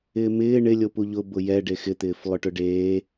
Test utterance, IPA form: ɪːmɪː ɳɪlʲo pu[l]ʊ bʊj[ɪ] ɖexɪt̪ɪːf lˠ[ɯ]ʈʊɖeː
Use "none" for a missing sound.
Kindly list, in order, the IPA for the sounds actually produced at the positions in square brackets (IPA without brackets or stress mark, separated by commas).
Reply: ʎ, ɛ, ʊ